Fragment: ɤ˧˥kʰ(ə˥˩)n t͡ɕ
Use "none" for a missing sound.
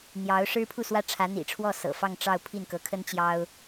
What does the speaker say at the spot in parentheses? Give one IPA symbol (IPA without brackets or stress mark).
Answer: ə˥